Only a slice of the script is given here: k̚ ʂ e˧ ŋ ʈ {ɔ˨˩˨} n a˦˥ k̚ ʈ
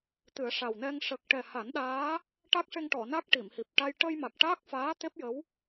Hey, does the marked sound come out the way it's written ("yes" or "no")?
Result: yes